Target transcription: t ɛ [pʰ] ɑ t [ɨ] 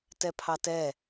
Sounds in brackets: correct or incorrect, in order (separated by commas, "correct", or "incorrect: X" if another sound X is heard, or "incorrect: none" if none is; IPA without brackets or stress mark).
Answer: correct, incorrect: ɛ